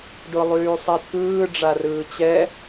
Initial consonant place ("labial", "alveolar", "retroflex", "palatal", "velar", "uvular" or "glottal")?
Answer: retroflex